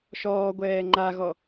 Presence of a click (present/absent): present